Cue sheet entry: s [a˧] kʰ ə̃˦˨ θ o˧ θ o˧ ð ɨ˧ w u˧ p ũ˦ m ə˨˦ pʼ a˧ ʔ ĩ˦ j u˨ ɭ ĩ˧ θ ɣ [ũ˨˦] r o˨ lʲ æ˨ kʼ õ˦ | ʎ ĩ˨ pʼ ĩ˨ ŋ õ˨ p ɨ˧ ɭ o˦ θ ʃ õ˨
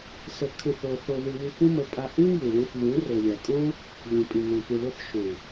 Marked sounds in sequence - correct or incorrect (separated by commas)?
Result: incorrect, correct